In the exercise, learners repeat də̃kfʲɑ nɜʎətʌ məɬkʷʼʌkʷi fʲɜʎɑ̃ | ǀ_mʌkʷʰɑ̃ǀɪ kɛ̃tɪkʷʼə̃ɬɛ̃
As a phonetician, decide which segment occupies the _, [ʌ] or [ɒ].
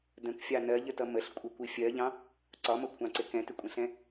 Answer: ɒ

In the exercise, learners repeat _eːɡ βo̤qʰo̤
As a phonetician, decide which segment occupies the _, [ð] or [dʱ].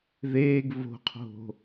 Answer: ð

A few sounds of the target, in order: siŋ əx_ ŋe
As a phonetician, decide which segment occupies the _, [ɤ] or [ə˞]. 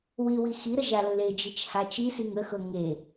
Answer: ɤ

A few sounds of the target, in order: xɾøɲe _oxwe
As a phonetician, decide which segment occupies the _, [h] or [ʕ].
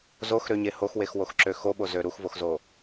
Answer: h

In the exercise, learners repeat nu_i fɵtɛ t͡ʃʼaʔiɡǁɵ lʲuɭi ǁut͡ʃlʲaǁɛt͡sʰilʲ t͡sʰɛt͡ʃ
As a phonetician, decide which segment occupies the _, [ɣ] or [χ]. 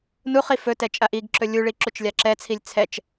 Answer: χ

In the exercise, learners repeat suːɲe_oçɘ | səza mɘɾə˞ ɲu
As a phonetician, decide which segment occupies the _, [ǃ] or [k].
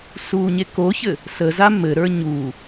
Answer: k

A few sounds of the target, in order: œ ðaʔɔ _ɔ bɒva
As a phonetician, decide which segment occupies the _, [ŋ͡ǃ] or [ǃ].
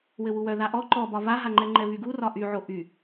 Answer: ǃ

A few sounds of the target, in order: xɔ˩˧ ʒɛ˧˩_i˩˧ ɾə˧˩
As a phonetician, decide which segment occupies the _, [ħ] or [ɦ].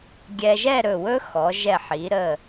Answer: ħ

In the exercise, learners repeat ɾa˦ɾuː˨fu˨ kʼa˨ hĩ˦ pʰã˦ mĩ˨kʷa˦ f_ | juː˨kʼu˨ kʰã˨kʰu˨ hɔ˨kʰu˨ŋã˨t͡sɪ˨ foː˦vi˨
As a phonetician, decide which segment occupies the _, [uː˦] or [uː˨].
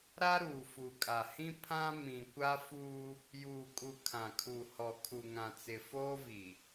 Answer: uː˦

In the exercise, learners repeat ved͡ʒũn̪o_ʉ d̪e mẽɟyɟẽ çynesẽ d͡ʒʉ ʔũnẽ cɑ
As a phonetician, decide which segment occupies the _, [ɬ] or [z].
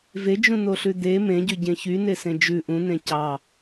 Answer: ɬ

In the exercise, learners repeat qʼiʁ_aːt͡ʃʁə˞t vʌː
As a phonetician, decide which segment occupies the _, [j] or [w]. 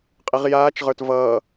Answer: j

